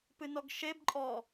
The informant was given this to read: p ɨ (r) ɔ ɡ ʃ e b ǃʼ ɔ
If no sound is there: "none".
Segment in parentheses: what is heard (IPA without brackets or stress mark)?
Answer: n